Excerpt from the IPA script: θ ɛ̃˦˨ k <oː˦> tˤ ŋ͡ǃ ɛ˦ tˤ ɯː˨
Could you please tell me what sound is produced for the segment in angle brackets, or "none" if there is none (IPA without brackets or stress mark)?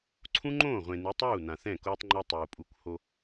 oː˦